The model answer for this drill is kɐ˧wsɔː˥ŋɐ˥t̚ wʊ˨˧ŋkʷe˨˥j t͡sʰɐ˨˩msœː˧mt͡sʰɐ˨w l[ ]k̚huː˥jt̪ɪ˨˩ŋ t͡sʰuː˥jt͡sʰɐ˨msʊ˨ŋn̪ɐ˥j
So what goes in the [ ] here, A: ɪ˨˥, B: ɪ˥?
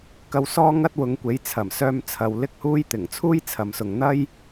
B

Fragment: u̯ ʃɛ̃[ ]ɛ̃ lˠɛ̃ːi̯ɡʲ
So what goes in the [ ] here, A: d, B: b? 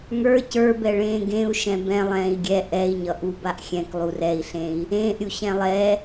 B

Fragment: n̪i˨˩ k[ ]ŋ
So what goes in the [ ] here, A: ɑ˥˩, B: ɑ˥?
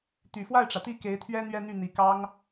B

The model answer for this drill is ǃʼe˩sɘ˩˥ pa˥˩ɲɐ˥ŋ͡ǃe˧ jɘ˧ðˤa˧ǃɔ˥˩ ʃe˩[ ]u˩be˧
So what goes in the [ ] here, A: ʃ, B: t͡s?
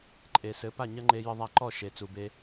B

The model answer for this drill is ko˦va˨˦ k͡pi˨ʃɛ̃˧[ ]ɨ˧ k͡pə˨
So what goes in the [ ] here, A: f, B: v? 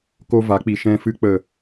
A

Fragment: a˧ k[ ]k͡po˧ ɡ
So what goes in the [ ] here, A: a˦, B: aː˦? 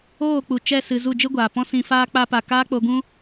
B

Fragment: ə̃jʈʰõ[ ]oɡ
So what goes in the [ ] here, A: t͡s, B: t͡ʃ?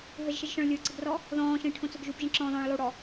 A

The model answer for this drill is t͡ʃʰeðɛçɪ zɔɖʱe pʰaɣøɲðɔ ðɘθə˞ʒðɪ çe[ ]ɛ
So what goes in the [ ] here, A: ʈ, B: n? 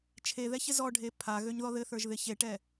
A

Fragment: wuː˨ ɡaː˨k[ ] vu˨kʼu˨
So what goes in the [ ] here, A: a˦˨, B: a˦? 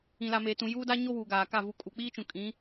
A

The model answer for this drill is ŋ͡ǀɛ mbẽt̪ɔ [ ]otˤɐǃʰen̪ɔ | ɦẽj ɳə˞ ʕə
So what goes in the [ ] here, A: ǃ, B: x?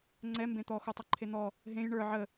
B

